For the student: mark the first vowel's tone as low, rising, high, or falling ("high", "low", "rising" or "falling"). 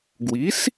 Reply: rising